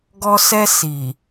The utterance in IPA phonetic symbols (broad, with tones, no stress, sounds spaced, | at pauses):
ɡ ɔ˧ s ɛ˧ s i˨